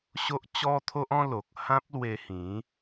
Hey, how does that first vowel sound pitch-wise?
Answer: high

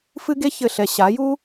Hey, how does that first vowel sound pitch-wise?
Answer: high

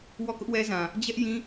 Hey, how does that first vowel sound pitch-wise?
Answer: falling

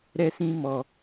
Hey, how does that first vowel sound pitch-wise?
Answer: high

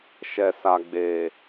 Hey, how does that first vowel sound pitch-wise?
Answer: low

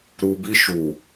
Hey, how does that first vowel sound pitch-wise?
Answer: low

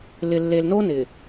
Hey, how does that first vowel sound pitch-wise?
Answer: low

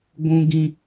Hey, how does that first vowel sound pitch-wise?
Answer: high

